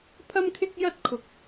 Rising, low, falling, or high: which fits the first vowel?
high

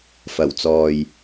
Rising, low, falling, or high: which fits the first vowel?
low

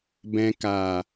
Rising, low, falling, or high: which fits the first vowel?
low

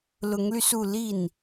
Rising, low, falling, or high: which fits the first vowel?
rising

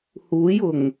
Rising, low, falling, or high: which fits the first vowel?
rising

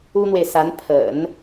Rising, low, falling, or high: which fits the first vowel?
high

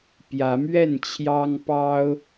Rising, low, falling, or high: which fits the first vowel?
rising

